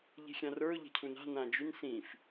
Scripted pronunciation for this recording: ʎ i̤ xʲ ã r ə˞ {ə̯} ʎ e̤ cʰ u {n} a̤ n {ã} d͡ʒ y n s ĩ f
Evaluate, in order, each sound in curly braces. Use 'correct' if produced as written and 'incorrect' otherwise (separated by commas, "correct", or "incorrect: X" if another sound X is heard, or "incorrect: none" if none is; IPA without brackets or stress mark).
incorrect: ʊ̯, correct, correct